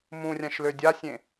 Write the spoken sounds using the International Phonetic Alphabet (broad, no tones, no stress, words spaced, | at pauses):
mũrʲãʃ lødʲasʲẽ